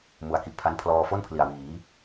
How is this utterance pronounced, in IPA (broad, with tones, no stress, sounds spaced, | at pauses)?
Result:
m u˩˦ a̯ k i˨˩ ʔ pʰ a˦˥ n pʰ l ɔː˧ f o˥˩ n pʰ l i˨˩ a̯ w iː˩˦